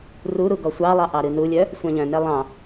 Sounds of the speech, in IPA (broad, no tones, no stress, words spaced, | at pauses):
ruɾu ɡɔsʷɑlˠɑ ʔɑɾɨnulʲœ | sʷɛ̃ʎœ̃nɛ lˠɑ̃